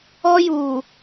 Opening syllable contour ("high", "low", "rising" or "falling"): high